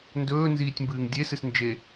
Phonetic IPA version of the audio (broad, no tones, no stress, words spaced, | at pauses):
ndɵːnziːtʲmbɨːŋ dʲe sɨsnd͡ʒe